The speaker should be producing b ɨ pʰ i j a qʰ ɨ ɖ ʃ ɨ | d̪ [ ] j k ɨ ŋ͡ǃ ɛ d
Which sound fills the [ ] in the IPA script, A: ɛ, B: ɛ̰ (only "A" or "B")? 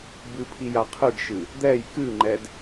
A